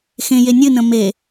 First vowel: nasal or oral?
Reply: nasal